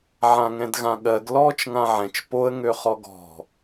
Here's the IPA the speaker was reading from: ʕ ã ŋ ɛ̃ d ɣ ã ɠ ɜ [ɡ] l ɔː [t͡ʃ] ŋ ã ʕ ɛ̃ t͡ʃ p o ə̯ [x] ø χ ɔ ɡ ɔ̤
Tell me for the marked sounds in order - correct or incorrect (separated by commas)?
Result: correct, correct, incorrect